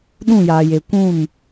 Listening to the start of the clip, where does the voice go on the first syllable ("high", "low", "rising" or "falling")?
falling